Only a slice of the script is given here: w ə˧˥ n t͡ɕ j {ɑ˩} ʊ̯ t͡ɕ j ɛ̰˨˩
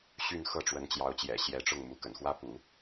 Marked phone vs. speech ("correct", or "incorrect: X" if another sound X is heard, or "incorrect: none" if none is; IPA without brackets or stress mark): incorrect: ɑ˧˥